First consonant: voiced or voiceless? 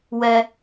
voiced